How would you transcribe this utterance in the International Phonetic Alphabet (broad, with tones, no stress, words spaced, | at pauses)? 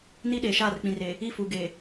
ni˦ ɗeː˨ʃaː˦˨rk͡pĩ˨reː˨ | i˦˨fuː˨ ɡeː˨